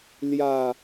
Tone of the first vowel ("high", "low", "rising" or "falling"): low